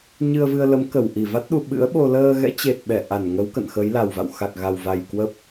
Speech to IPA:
ɲ ɨ˧ ə̯ v ɨ˧ ə̯ l ə˨˦ m k ə˧˩ w ʔ i˧˩ v a˦˥ t̚ ɗ u˧ ɓ ɨ̰˧˥ ə̯ ɓ o˧ l əː˧ ɣ ɛ̰˧˥ t͡ɕ e˨˩ t̚ ɓ ɛ˧˩ ʔ a˧˩ n ŋ ə˨˦ w k ə̰˧˨ n x ə˨˦ j l a˨˩ w v a̰˧˨ w x a˨˩ k̚ ɣ a˨˩ w v a˨˩ j k w ə˦˥ p̚

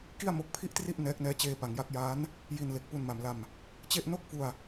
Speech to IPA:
k i˥˩ a̯ m o˦˥ k̚ pʰ i˥˩ ʔ t r i˥˩ ʔ n ɛː˦˥ k̚ n ɛː˦˥ t͡ɕ eː˧ p a˩˦ ŋ j a˦˥ k̚ j aː˦˥ n | j i˧ n l e˨˩ k̚ p u˧ n m a˩˦ m l a˧ m | t͡ɕ e˥˩ ʔ n o˥˩ k̚ f u˧ a̯

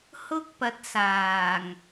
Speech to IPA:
h ʊ˥ k̚ p ɐ˨˥ t̚ s aː˨˩ ŋ

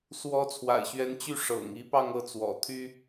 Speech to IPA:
s w ɔ˧˥ t͡sʰ w a̰˨˩ ɪ̯ ɕ ɥ ɛ˧˥ n t͡ɕ y˥˩ ʂ ɤ̰˨˩ ŋ i˧˥ p ɑ˥˧ ŋ ɤ˥˩ t͡s w ɔ̰˨˩ t̪ʰ y˥

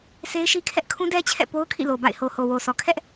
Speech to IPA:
sʰ e˦ ɪ̯ ʃ i˦ kʰ ɛ˦ ʔ kʰ ũ˦ d ɛ˦ t͡ɕʰ ɛ̰˦˨ p o˦ ʊ̯ kʰ ḭ˦˨ l o˨ b a̰˦˨ ɪ̯ h o˨ h o˨ w o˨ s ɔ˨ kʰ ɛ˦ ʔ

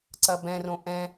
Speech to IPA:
ǀ ɐ b ɛ̃ r õ ʔ ɛ̃

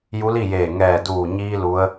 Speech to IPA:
j u˧˥ l i˥˨ j eː˧˩ ŋ ɛː˧˩ d uː˧˩ ɲ iː˧ l u˧˥ ə̯

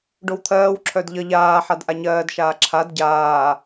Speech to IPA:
ɖ o w t̪ʰ ɜː w ǁʰ œ d ʎ ʌ ʎ aː ħ a d ʔ a ɲ ɜː d ʃ aː ǁʰ a d ɟ aː

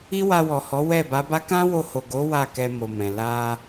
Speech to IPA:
i˦ w a˧ w ɔ˨ h ɔ˨˦ w ɛ˦˨ b a˨˦ b a˦ k ã˦ w o˧ h o˨ ɡ o˨˦ w a˦˨ k ɛ˧ m o˨ m ɛ̃˨ l a˧

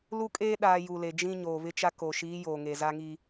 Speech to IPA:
l u˦ kʼ eː˦ ɗ aː˨ j u˨ l e˨ d͡ʒ ĩ˦ ɲ oː˨ β ɪ˦ t͡ʃ a˦ k o˨ ʃ iː˨˦ j oː˨ ŋ e˨ z a˦ ŋ i˦

